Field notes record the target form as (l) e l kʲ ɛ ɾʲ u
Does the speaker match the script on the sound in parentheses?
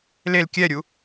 yes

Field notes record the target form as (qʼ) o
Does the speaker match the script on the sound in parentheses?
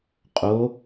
yes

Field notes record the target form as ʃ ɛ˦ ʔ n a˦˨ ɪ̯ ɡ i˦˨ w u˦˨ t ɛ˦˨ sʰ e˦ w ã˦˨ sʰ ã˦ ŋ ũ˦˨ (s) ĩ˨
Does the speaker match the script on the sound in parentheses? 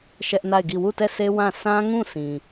yes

